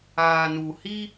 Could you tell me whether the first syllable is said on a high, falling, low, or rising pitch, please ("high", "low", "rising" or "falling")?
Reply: low